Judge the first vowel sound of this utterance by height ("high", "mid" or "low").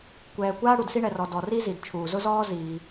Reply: mid